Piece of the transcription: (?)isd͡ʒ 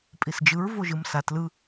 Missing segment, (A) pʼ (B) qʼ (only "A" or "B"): A